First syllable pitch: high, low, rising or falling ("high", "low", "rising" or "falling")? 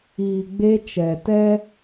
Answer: low